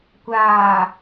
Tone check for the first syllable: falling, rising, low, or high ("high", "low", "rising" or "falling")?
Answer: low